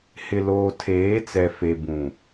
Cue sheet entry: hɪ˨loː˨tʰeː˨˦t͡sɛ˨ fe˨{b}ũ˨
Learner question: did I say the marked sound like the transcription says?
yes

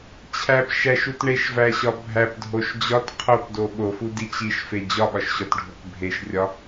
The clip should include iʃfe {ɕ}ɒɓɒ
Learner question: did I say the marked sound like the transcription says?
no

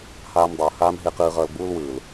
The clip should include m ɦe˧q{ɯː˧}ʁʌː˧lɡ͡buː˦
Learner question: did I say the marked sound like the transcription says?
yes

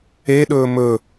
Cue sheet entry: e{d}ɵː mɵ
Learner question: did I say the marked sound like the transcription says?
no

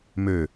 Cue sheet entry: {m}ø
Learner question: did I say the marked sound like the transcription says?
yes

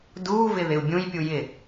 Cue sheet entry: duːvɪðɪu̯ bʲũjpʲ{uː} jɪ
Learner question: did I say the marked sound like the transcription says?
no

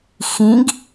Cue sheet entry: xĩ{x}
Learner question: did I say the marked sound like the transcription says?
no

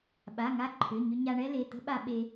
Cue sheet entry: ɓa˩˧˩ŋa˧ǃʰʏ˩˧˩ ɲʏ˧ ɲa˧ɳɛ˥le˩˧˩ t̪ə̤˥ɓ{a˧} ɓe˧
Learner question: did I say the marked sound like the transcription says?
yes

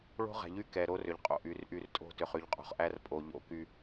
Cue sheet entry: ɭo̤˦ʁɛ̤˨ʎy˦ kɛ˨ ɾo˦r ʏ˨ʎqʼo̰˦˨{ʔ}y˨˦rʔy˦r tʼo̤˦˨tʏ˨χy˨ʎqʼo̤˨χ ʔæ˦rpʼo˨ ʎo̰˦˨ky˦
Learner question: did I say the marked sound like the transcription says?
yes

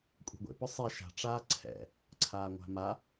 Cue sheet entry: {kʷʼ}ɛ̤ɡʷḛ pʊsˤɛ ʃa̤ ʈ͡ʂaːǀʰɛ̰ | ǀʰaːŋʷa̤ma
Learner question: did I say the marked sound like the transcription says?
yes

